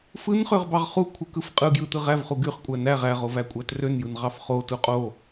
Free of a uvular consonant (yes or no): no